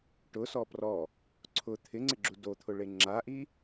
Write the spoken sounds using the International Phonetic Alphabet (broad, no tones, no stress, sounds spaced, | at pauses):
ʈ ʊ s ɔ p r ɔ | ǀʰ ʊ t̪ʰ ɪ ŋ͡ǀ ɪ ɡ͡ǁ u d o t̪ʰ ʊ ɭ e ŋ͡ǁ a ʔ i